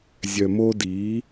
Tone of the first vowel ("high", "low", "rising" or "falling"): low